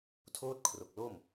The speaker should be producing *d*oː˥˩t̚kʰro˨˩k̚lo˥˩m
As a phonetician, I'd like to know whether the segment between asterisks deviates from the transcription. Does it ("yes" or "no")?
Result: yes